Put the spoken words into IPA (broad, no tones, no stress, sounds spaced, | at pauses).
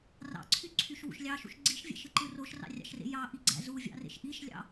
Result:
r ɑ̰ ǀʰ y ǀʰ y ʃ w ṵ ʃ lʲ ɑ ʃ ṵ ʃ ɡ͡ǀ i ʃ vʲ æ̰ ʃ ɯ ǃ ɯ r o ʃ r ɑ̰ rʲ ɑ̰ ʃ r ḛ j ɑ ʔ i ɡ͡ǀ æ̰ z u vʲ ɑ̰ r ḛ ʃ ʔ i ʃ lʲ ɑ̰